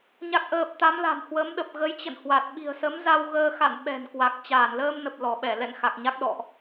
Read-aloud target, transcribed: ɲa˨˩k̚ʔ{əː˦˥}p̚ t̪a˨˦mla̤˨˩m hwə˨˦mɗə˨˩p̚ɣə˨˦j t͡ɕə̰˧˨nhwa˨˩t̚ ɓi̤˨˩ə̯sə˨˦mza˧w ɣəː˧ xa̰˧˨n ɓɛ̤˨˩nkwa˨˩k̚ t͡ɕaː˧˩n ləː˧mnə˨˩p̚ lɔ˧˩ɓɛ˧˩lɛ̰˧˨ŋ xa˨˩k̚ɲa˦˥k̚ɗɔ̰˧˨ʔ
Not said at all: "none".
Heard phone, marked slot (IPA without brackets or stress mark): əː˨˩